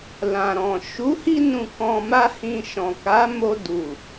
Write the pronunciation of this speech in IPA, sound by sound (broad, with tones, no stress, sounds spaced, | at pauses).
l ã˨ ɾ ɔ̃˨ ʃ u˨˦ h i˧ n ũ˨ k ɔ̃˧ m a˦ h ĩ˧ ʃ ɔ̃˨ k a˨˦ m o˧ d u˨